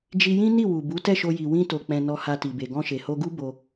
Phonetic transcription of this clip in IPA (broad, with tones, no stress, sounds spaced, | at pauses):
d͡ʒ i˧ j ĩ˦ n i˦˨ w u˨ b u˨˦ t ɛ˦˨ ʃ o˧ j i˨ w ĩ˧ t o˨ k͡p ɛ̃˨ n ɔ˧ h a˧ t i˨ b e˨ ɡ ɔ̃˧ ʃ e˨ h o˧ ɡ u˦ b o˧